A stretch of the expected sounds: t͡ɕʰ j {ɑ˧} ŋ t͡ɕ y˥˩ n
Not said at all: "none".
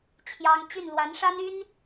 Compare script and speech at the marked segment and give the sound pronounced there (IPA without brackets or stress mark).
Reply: ɑ˥